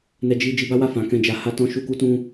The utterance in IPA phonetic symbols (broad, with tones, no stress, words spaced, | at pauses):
nɛ˧d͡ʒi˧ d͡ʒi˧ba˦wa˦˨ fã˨˦kɛ̃˦˨d͡ʒa˧ ha˦tɔ̃˦˨ ʃu˧ku˧tũ˧